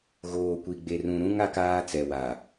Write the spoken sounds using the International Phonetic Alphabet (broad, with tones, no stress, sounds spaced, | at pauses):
ɣ oː˨ kʷ i˨ ɡ͡b e˨ r ũ˨ ɾ ũ˦ ŋ a˦ k aː˦ t͡s ɛ˨ w a˨